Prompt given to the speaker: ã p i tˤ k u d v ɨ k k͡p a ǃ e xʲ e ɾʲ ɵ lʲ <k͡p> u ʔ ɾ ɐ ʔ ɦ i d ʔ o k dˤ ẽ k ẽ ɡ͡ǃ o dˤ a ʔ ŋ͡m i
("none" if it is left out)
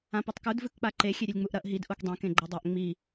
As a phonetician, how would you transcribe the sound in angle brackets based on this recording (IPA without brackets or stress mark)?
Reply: ŋ͡m